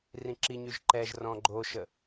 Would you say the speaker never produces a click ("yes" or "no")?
no